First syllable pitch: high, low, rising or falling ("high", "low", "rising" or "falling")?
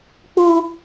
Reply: high